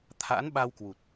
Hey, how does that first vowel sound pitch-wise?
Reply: rising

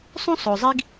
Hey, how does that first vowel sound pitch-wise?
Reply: high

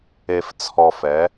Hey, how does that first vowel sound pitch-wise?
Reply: low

